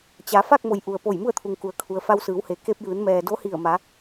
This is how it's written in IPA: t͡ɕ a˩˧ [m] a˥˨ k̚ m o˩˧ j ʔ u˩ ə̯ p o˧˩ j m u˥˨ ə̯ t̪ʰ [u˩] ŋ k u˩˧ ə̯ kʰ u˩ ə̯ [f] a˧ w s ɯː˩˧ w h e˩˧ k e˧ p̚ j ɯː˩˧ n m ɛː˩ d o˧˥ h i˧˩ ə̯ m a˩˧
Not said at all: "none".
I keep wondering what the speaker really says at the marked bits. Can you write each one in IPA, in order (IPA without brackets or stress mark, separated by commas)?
f, u˩, f